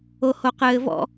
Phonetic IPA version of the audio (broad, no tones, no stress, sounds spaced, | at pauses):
o h o q ɘː v ɔ̰